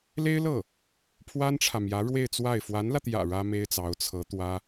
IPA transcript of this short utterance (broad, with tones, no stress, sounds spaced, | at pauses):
l e˥ ɪ̯ l ɤ˥˩ | pʰ w a˥ n ʈ͡ʂʰ ä˨ m j ä˧˥ ɻ w e˥˧ ɪ̯ t͡s w a˥˩ ɪ̯ f w a˧˥ n l ä˧ t̪ j ä̰˨˩ ɻ ä˥ m e˥ ɪ̯ t͡s ɑ˧˥ ʊ̯ t͡sʰ ɤ˧˥ t̪ w ä˥